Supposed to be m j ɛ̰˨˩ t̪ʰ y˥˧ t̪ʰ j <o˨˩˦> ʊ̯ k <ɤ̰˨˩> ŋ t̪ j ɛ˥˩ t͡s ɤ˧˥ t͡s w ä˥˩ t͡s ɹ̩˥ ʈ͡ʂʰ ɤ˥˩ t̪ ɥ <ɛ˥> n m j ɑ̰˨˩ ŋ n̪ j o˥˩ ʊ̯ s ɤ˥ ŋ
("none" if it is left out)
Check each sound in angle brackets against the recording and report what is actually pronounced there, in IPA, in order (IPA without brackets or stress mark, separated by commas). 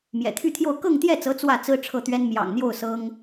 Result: o˥˧, ɤ˥˧, ɛ˥